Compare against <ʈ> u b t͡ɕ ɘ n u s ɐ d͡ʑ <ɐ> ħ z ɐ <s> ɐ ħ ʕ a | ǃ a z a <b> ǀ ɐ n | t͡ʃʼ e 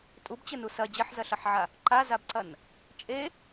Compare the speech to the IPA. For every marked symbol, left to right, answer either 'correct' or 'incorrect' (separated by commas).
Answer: incorrect, correct, incorrect, correct